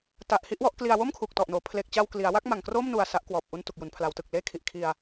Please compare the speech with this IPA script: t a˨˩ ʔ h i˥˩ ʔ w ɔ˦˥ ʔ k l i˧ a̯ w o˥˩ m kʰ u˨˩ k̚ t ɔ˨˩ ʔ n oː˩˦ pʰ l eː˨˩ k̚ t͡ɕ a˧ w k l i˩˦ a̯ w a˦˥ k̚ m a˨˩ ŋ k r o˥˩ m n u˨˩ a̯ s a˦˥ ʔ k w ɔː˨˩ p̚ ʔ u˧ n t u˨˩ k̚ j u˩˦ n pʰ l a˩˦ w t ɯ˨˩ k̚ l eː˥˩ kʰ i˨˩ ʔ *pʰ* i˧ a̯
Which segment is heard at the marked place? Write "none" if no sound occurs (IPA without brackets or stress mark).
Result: kʰ